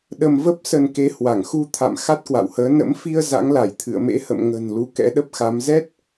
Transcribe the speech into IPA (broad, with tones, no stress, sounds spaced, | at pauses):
ɗ ə˧ m v ə˦˥ p̚ s ə˧ n k e˨˦ h w a˧˩ ŋ x u˧ t̪ʰ a̰˧˨ m x a˦˥ t̚ k w a̰˧˨ w h əː˨˦ n ə̰˧˥ m f i˧ ə̯ z a̰˧˥ ŋ l a˧˩ j t̪ʰ ɨ̰˧˨ ə̯ m ḛ˧˥ h ə̰˧˨ m ŋ ə̤˨˩ n l u˧ k ɛ̰˧˥ ɗ ə˦˥ p̚ x a˨˦ m z ɛ˦˥ t̚